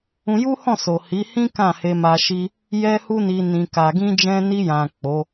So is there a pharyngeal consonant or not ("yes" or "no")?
no